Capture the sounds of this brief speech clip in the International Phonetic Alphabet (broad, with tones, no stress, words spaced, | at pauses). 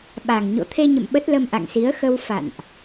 ɓa˨˩ŋɲo̰˧˨ t̪ʰe˧ɲə̰˧˨m ɓə˦˥t̚lə˧mʔa̰˧˨ŋ si˨˦ə̯xə˧w fa̰˧˨nʔ